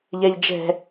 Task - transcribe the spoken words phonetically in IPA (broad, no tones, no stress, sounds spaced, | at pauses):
ʎ ɛ ʎ d͡ʒ ɛ̤